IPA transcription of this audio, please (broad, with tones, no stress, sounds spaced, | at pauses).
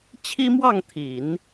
t͡ɕʰ i˥ m w ɑ˥˩ ŋ t̪ʰ i˨˩˦ n